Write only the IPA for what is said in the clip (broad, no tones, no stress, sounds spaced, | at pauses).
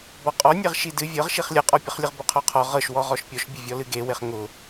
b ɔ qʼ ɔ nʲ e ʁ ʃ i d ɨ vʲ ɤ ʁ ʃ i χ lʲ ɤ qʼ ɔ pʲ ɤ χ lʲ ɨ ʁ b ʊ qʰ ɔ qʰ ɔ ʁ ɤ ʃ w ɔ ʁ ɔ ʃ pʲ ɔ ʃ bʲ ʊ vʲ ɔ l ɨ ɡ e w e χ ŋ ʊ